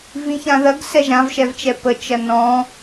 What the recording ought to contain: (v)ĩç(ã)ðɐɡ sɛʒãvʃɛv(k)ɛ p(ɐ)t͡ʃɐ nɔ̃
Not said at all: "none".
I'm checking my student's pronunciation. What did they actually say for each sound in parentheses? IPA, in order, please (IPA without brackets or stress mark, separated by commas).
v, ã, t͡ʃ, ə